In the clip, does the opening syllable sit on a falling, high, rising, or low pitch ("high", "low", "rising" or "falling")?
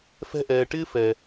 high